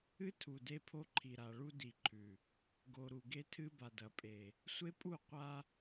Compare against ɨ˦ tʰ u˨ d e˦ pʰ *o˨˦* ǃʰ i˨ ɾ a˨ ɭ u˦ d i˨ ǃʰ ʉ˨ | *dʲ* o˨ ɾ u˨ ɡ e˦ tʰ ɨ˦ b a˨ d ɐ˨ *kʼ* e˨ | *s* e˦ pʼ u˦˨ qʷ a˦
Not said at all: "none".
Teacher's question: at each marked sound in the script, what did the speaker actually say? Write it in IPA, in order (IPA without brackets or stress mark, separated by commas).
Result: o˦, ɡ, pʼ, sʷ